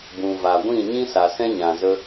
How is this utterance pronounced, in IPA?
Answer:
b ũ˨ v a˨ ɡʷ ĩ˦˨ ɲ ĩ˦ s a˨ s ɛ̃˦ ɲ ã˨ z ə˦

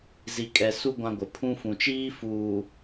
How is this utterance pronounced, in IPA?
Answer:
z i˨ kʼ ɛ˨ s u˦ ɡʷ ã˦ ɡʷ ɪ˨ pʰ ũ˦ f ũ˨ t͡ʃ iː˦ f uː˨

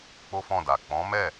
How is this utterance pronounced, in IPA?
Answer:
k͡p o˦ f ɔ̃˦˨ d a˨ k͡p ɔ̃˨˦ m ɛ˦˨

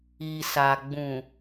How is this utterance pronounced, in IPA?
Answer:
i˨ s a˨ ɡ͡b ũ˨

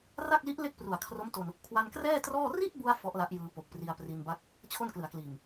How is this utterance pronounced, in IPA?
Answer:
r a˥˩ k̚ l i˦˥ ʔ l e˥˩ k̚ p r u˨˩ a̯ kʰ r o˦˥ m t o˧ n | kʰ w a˧ n k r ɛː˥˩ t r ɔː˥˩ r i˥˩ t̚ b u˧ a̯ f ɔ˦˥ ʔ l a˦˥ ʔ j ɯː˧ p o˨˩ k̚ p r i˧ a̯ p r i˧ n b a˥˩ k̚ | t͡ɕʰ o˥˩ n k l ɯ˩˦ a̯ k l iː˨˩ ŋ

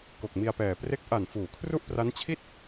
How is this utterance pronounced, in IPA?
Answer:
k o˨˩ k̚ m i˧ a̯ p ɛː˨˩ p r e˦˥ k̚ ʔ a˨˩ n f uː˩˦ kʰ r u˥˩ ʔ p r a˦˥ n t͡ɕʰ i˥˩ t̚

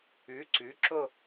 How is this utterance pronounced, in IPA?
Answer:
ʉ˨˥ ǀ ʉ˨˥ ǁ o˥˧

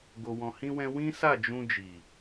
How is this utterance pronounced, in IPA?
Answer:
ɡ o˧ w ɔ̃˧ h ĩ˦ w ɛ̃˦ w ĩ˦ s a˦˨ d͡ʒ ũ˧ d͡ʒ i˨

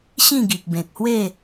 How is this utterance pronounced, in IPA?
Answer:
ɕ ĩ˥˧ ɡ i˨ k̚ b ẽ˨ k̚ h w e˥˧

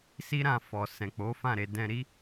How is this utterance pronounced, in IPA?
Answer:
s i˦ ɾ ã˧ f ɔ˨ s ɛ̃˨ k͡p o˨˦ f ã˦˨ ɾ e˧ d ɛ̃˧ ɾ i˦

